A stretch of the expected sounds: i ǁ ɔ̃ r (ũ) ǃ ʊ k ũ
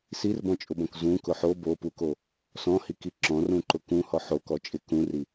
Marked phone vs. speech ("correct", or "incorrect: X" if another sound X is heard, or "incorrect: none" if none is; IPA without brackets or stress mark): correct